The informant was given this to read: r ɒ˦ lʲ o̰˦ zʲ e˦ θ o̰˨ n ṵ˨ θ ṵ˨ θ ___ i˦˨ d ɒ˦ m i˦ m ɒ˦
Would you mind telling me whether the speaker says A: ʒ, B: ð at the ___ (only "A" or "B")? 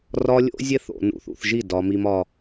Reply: A